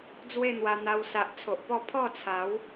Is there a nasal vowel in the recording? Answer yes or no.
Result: no